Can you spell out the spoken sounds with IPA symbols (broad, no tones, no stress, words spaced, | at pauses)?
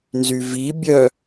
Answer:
nzyvi bʲœ